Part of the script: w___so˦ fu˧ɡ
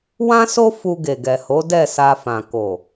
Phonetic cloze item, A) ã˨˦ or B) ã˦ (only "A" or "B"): B